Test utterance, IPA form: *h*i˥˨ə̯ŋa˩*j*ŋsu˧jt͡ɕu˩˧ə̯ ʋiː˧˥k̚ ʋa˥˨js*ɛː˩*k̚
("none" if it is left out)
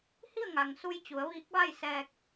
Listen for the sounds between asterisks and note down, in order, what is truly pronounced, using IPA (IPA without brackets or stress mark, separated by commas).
h, none, ɛː˧